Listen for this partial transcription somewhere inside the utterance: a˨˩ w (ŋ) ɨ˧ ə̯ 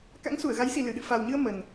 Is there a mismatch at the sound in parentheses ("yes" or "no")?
yes